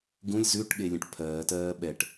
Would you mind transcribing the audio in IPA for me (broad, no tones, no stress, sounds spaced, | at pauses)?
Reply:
ɡ ũ lʲ z ʉ ʈ ɠ e lʲ ɛ̃ ʈ pʰ ɜː t ɜː ɓ ɛ ʈ